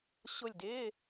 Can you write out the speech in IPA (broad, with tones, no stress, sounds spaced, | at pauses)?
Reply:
ɕ ʊ˦˨ lʲ d ɪː˧˥˧